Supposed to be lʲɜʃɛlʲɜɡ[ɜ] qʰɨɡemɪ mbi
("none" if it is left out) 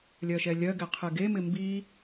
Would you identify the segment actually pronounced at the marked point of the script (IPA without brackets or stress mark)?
ɛ